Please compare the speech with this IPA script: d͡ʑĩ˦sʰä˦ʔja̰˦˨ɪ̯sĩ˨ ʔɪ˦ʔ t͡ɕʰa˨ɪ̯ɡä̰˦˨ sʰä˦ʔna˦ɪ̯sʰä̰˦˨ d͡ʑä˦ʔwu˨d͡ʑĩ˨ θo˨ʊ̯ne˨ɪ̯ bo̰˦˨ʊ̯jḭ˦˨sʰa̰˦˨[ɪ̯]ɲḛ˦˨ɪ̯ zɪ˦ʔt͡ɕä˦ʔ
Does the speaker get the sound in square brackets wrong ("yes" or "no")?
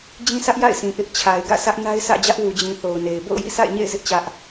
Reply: no